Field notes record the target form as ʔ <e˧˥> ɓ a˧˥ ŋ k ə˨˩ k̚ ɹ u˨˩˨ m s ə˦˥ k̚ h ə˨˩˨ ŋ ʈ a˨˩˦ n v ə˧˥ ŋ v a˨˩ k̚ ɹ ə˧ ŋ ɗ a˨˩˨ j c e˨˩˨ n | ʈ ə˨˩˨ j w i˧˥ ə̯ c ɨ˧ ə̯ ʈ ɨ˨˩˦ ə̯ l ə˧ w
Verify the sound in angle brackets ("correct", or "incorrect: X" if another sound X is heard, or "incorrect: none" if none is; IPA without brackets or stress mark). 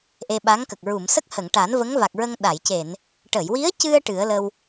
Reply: incorrect: e˧